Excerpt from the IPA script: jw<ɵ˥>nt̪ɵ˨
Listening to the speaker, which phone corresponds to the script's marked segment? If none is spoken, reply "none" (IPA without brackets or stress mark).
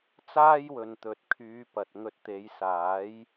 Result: ɵ˨